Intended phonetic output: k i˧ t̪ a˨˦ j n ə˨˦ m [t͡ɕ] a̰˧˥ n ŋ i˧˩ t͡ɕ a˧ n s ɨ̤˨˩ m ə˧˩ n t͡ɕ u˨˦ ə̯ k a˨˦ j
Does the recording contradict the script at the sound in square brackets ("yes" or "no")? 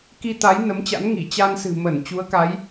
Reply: no